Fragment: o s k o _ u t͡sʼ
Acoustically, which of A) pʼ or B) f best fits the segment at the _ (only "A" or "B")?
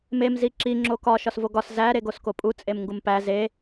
A